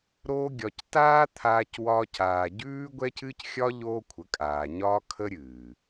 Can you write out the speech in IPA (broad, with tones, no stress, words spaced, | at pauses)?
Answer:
ɾoː˦ɡʲɒ˧c taː˦t̪ʰaː˧cwɒː˧caː˨ ɟʉː˦ɡʷɛ˦cɨ˦cxʲɒ˦ ʎoː˦kʷʰə˨˦kʼaː˨ɲɒː˦ kʰə˦ɾʲɨː˨